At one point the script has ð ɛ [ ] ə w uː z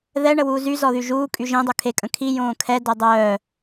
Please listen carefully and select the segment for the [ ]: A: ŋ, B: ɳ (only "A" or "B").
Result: B